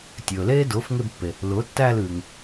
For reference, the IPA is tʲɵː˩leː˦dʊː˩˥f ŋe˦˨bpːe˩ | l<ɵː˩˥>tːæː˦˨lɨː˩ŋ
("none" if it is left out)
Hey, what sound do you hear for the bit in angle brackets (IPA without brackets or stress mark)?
ʊː˩˥